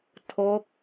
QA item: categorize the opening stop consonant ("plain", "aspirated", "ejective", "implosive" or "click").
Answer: aspirated